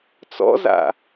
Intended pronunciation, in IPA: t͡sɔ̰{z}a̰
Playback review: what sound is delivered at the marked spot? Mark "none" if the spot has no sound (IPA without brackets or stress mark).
z